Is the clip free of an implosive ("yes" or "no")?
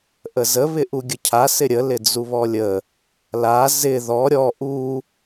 yes